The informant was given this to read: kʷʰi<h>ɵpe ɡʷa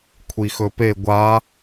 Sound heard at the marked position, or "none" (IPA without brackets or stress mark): x